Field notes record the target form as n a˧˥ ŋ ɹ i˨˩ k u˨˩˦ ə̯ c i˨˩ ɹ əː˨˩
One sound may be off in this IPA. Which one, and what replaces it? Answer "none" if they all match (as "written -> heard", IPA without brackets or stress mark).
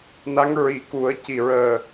none